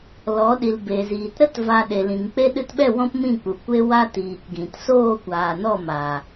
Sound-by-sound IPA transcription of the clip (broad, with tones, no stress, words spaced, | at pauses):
lɔ˨˦ɗi˨l be˨ziː˨t ɾə˦t va˧ ɗe˨lĩ˨ŋk͡pe˦ ɗɨ˧tɓɛ˦˨ wɔ̃˦pmĩ˦˨k͡pu˨ kʷe˧ wa˦tiː˨k ɡĩ˨t soː˦˨kʷaː˨nɔ˦˨ ma˨